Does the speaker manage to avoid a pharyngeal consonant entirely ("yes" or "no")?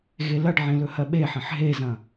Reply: no